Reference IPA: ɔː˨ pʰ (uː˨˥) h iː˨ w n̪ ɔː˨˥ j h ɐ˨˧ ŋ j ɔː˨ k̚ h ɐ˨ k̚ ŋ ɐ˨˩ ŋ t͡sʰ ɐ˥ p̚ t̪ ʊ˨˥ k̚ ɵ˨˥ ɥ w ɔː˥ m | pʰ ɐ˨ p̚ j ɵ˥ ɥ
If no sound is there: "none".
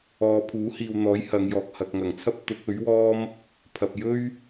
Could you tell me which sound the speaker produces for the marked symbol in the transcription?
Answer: uː˨˥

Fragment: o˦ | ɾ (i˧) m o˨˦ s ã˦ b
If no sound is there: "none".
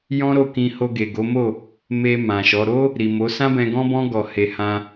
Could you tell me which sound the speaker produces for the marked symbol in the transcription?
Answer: i˨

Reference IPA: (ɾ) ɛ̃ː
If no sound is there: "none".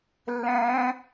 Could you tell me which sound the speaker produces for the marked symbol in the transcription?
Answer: lː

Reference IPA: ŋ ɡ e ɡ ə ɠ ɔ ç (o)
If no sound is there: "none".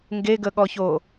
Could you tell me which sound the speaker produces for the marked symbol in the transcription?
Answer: o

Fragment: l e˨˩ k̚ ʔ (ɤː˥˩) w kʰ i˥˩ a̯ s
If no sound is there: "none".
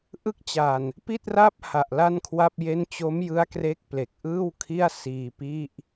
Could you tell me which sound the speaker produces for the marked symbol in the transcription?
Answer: ɯː˥˩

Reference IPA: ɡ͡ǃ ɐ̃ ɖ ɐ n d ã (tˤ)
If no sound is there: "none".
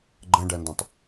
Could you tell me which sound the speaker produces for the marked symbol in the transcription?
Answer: tˤ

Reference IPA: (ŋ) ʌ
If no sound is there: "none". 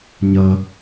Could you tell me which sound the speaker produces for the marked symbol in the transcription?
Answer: ɲ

